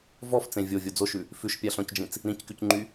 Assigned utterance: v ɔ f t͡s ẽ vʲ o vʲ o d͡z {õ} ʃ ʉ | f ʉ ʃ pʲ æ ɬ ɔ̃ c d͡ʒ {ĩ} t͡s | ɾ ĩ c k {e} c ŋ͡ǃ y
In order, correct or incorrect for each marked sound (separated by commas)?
incorrect, correct, incorrect